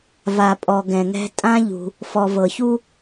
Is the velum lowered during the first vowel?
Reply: no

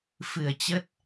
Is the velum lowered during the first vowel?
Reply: no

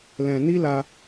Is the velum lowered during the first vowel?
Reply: yes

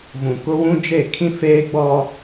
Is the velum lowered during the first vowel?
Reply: yes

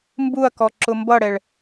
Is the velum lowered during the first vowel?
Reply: no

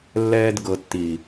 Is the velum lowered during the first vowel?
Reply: no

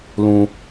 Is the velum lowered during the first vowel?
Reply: yes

